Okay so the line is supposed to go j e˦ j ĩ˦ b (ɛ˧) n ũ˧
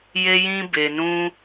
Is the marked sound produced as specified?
no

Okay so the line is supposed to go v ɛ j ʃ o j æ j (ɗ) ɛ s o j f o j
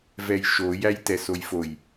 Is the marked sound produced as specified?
no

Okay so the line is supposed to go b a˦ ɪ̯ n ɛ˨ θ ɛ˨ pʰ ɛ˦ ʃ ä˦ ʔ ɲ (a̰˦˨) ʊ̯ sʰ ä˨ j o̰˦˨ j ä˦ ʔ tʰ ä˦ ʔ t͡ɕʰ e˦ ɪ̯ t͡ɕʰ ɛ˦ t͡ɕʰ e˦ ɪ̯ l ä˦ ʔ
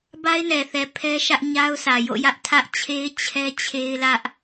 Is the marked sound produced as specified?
no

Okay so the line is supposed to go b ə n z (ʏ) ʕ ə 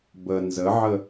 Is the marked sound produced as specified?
no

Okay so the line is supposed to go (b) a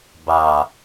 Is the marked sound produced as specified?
yes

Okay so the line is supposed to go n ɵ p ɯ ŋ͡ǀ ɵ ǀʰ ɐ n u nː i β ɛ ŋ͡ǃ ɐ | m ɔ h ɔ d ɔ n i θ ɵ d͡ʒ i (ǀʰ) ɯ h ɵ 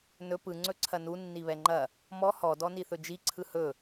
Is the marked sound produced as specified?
yes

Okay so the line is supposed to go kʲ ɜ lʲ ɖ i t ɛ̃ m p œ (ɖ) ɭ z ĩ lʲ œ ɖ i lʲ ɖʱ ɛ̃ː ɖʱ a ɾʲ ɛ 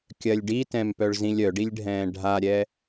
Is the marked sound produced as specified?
no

